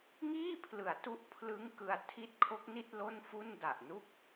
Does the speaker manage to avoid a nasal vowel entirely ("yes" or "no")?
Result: yes